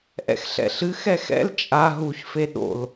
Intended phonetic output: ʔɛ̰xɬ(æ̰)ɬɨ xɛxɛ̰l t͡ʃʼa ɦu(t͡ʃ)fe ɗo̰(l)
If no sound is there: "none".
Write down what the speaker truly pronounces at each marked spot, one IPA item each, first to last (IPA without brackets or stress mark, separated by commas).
ɛ̰, ç, l